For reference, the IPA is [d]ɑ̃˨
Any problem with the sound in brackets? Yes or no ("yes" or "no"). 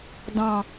no